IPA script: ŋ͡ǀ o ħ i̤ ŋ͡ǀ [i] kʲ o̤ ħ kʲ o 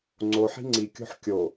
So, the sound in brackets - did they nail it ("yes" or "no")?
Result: yes